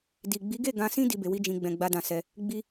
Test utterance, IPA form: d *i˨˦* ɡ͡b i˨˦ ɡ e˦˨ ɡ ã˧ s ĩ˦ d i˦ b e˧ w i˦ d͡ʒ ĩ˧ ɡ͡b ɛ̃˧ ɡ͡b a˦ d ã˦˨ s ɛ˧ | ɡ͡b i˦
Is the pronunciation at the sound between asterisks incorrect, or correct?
incorrect